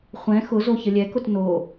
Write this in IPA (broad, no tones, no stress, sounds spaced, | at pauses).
χʷ ɛ̃ x ʊ z o ç ə lʲ ɛ k ʊ t n o